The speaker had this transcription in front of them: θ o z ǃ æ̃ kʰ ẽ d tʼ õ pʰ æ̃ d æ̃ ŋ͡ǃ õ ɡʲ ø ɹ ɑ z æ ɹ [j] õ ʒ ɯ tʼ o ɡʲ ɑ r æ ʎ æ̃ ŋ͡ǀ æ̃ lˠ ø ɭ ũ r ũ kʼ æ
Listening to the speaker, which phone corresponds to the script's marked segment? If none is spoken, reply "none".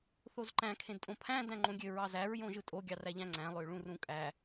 j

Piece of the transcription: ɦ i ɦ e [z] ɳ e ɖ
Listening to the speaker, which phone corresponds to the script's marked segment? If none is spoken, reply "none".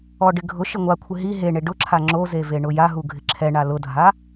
none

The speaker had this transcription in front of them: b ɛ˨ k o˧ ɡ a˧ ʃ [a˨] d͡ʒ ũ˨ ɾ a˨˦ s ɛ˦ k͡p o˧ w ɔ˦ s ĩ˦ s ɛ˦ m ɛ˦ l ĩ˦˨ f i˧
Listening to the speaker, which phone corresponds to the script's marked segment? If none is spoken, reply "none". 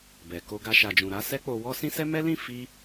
a˨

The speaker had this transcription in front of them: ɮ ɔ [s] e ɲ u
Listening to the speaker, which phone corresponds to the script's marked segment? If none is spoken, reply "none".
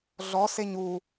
s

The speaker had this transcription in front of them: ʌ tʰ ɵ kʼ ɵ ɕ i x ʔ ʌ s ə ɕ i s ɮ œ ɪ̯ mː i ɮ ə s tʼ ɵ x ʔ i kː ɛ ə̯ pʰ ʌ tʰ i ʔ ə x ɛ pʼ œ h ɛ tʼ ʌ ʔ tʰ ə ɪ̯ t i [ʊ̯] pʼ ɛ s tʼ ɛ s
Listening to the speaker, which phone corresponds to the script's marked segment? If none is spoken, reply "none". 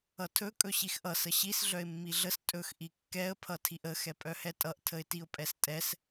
ʊ̯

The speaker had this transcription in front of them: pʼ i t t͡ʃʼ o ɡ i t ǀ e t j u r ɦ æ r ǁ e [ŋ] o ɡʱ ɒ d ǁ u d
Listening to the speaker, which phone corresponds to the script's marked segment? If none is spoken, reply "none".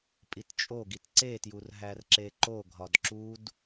ǃ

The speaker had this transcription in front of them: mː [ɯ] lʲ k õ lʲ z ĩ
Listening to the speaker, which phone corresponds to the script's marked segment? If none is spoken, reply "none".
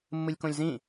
ɯ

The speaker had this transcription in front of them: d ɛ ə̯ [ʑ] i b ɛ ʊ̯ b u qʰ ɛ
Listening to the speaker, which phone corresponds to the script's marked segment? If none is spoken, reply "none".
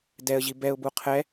ʑ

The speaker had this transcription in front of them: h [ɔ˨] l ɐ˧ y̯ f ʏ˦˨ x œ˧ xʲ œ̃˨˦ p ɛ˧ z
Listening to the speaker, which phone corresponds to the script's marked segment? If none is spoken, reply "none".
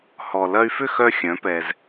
ɔ˨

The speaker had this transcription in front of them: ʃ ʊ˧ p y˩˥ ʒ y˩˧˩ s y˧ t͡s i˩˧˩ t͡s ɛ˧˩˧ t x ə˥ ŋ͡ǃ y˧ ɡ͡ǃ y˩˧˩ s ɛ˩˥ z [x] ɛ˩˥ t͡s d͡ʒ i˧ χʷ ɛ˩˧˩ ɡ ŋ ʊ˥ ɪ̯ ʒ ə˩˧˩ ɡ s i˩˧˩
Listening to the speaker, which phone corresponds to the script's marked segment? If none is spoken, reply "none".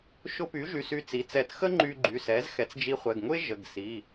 x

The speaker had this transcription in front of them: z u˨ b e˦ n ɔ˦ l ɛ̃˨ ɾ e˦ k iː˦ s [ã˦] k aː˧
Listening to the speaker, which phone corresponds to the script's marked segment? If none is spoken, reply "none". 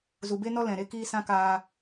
ã˦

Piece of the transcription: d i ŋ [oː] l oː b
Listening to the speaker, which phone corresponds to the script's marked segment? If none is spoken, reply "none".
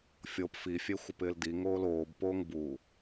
oː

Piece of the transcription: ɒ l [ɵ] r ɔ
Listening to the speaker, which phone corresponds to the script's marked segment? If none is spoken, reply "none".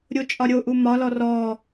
ɔ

